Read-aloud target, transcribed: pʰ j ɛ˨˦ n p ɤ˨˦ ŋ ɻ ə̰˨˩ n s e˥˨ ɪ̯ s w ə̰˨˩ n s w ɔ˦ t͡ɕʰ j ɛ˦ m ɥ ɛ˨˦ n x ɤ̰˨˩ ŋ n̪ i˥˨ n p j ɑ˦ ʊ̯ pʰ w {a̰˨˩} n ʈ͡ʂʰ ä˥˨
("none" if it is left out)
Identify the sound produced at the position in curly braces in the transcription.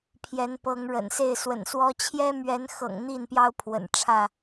ə̰˨˩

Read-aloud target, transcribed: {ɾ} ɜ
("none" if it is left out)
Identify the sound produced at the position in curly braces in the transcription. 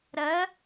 ɾ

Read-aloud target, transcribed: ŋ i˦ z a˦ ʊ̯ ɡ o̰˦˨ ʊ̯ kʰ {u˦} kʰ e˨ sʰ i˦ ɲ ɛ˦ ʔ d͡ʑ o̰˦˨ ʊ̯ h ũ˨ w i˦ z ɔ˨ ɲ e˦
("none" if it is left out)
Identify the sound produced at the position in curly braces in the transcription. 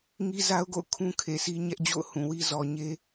ũ˦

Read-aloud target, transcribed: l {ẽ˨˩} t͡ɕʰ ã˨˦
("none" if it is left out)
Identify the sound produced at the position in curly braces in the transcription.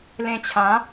ẽ˧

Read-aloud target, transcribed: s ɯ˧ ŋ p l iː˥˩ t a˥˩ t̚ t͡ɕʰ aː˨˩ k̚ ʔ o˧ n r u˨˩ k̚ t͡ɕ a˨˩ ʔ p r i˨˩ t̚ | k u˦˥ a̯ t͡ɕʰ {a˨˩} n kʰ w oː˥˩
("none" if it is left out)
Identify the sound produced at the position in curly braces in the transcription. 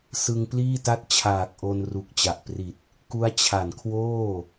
a˨˩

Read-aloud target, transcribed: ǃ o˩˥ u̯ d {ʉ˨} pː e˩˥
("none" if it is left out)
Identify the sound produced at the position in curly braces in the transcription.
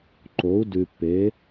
ʉ˨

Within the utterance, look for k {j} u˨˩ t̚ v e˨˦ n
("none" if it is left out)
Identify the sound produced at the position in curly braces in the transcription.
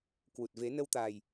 w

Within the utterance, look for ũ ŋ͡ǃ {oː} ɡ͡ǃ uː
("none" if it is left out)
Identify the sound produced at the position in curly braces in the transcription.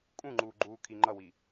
uː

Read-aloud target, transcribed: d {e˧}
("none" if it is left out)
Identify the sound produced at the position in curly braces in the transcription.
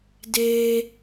e˧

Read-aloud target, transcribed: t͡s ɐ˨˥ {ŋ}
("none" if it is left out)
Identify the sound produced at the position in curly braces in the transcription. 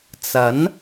n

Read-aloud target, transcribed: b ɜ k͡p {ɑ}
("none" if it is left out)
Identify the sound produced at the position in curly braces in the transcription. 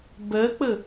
ə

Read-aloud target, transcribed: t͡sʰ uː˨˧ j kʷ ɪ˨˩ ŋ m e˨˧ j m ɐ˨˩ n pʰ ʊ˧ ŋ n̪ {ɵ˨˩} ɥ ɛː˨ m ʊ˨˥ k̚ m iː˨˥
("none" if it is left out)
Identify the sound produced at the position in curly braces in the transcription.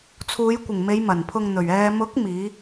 ɵ˨˩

